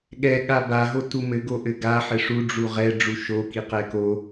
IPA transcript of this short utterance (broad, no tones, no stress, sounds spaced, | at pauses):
ɠ ɛ ɠ a b a ɦ o t u m ɘ ɡ o ʔ ɘ ɡ a ħ ɘ ʂ u ɖ͡ʐ u ʁ ɛ ɖ͡ʐ u ʃ o k i q ɛ k o